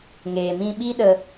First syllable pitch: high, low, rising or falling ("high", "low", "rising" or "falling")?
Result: low